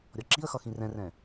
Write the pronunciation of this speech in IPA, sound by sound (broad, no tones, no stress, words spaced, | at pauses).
ɾʲɔǁiə̯xʌ xĩrɛ̃rɛ̃